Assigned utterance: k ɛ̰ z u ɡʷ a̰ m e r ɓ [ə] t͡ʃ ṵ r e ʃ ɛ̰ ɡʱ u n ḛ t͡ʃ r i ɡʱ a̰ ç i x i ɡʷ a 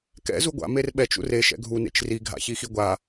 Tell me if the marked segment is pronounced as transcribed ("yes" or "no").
no